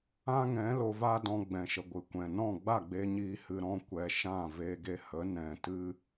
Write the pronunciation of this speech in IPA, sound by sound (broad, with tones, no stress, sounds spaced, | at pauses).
ã˦ ŋ ɛ̃˨˦ l o˧ v a˦ d ɔ̃˧ ɡ͡b ɛ̃˨ ʃ ə˨ ɡʷ ɨ˨ kʷ ɛ̃˨ n ɔ̃˦˨ ɡ͡b a˦˨ ɡ͡b e˧ ɲ iː˧ h ɨ˧ ɾ ɔ̃˦ kʷ ɛ˧ ʃ ã˦˨ v eː˧ ɡ e˧ h ə˨˦ n ɛ̃˨ t ɨ˦